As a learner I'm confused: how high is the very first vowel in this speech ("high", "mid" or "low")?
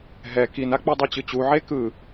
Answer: mid